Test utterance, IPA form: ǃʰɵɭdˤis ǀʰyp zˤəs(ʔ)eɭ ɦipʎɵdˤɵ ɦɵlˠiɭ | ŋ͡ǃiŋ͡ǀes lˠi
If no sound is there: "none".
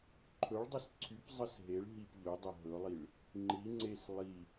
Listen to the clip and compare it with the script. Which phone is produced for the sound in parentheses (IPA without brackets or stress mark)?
ɦ